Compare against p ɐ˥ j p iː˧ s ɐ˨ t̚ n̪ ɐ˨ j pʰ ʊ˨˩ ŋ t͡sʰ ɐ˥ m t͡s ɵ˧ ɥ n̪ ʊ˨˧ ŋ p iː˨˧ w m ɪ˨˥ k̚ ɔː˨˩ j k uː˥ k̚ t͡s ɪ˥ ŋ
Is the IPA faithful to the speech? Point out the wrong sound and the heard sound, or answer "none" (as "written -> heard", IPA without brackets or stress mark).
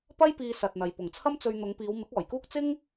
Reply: pʰ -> p